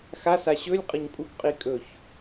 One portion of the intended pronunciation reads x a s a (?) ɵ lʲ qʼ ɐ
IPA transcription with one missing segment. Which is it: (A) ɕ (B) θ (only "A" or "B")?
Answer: A